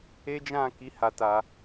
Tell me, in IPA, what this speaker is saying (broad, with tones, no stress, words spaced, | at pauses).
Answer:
e˦d͡ʒã˦˨ ki˨˦ ha˧ta˧